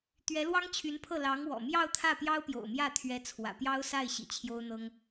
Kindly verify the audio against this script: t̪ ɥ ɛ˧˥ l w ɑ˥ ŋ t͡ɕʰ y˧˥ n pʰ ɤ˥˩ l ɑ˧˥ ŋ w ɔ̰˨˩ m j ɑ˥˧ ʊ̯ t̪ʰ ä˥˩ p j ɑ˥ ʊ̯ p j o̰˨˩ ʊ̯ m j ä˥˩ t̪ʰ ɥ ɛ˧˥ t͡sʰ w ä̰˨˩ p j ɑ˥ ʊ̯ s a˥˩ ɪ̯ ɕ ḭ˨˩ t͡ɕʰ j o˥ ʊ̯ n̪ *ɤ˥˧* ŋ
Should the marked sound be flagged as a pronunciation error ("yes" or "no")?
yes